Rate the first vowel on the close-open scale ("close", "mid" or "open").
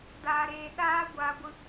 open